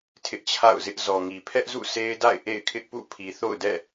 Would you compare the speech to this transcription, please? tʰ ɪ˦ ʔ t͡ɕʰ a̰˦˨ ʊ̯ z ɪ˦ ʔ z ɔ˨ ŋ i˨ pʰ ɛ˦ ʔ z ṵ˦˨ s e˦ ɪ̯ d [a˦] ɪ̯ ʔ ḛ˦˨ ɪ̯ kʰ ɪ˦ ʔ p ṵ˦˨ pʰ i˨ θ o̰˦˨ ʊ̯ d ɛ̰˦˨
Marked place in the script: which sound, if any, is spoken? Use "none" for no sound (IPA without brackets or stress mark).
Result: a̰˦˨